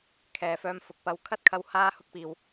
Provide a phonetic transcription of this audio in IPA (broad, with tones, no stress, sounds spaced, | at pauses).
kʰ ɛː˨ f œː˧ m f ʊ˨˥ k̚ p ɐ˧ w kʰ ɐ˥ t̚ kʰ ɐ˧ w h aː˧ h ʊ˥ k̚ p iː˨ w